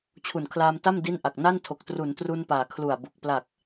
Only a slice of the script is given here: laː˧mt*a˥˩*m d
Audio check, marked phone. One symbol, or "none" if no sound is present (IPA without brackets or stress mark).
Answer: a˥˩